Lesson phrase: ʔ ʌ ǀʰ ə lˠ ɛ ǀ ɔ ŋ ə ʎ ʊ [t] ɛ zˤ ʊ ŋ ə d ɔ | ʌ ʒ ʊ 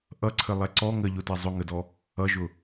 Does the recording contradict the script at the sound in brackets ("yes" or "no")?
no